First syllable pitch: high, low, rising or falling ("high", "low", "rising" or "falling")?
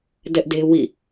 high